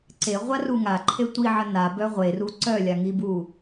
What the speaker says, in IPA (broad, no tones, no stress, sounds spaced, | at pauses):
ǀ e ʁʷ a r u ŋ a ǃʰ e tʷ i ʕ ə n a b œ ʁʷ e r u ǀ œ lʲ a ŋ i b u